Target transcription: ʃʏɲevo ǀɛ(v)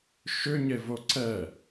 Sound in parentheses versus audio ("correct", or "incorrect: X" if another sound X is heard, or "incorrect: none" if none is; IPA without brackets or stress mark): incorrect: none